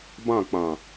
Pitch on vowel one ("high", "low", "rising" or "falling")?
falling